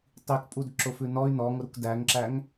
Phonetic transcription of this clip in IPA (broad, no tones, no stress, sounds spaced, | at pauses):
tˤ i k pʼ u d ǁ ʊ f ʉ n ɔ y̯ n ɔ ŋ ʊ ɾ u k d æ ŋ ǁ æ ŋ